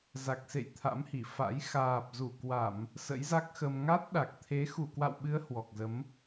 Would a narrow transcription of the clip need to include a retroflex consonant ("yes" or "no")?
no